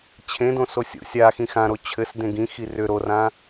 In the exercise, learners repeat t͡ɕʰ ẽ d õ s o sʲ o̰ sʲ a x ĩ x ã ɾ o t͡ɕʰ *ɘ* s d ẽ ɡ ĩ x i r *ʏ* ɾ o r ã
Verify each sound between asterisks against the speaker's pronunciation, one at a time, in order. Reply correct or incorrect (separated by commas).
correct, correct